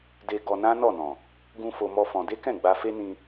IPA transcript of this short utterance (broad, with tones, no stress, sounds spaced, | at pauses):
d e˧ ɡ ɔ˧ n ã˦ n ɔ˦˨ n ɔ̃˨ | ɡ ũ˦ f o˧ m ɔ˦ f ɔ̃˧ d e˦ k ɛ̃˦˨ ɡ͡b a˧ f e˦ n ĩ˧